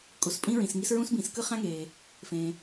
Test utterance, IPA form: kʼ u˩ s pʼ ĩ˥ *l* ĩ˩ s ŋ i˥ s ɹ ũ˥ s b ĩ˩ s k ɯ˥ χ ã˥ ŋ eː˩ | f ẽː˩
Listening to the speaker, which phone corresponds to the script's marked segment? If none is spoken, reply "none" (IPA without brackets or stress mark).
ɹ